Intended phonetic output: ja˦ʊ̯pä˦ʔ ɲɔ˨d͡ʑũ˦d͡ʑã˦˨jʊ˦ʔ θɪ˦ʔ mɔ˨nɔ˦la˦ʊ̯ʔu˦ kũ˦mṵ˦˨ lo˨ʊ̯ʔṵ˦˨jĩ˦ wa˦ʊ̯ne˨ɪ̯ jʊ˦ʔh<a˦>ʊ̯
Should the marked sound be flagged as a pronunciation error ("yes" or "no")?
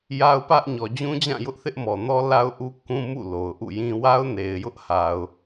yes